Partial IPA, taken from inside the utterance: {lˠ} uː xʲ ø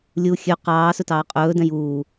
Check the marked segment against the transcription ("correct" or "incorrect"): incorrect